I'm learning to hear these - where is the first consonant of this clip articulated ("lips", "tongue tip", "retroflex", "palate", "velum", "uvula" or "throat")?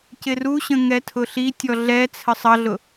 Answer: palate